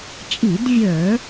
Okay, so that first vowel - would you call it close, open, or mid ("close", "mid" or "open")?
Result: close